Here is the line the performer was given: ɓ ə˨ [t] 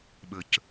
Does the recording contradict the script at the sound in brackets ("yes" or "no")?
yes